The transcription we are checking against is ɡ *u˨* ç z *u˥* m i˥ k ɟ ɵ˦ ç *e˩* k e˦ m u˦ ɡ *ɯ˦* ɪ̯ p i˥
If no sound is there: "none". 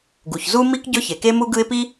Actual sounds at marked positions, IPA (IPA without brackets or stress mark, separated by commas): u˩, u˥, e˩, ɯ˦